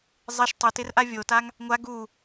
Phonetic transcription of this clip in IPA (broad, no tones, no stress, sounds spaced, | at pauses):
zˤ ɪ ʃ tˤ ʊ t ɪ r ʔ a vʲ o t a ŋ | ŋʷ a ɡ u